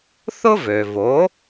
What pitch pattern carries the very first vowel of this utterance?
high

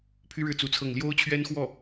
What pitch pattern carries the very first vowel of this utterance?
high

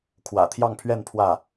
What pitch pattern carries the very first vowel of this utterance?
low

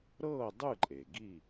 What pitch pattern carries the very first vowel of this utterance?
falling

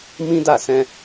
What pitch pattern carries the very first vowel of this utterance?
high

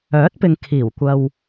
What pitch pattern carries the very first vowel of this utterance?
rising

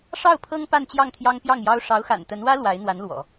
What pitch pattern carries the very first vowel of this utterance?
falling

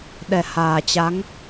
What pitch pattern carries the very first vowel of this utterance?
low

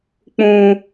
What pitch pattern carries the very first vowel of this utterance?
high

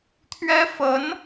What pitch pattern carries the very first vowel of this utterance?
high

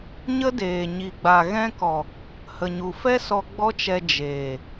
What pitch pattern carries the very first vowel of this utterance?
high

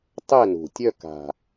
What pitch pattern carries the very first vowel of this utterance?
falling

